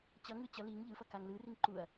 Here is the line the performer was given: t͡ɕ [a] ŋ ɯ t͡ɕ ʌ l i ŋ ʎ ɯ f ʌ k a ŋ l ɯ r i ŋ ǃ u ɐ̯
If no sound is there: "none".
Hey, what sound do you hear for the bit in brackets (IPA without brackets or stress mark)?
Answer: ʌ